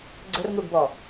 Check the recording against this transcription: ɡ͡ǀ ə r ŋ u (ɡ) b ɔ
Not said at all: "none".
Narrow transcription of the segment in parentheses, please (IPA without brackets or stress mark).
ɡ